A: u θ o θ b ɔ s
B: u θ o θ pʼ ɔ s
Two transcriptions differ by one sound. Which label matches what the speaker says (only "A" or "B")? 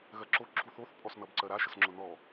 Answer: B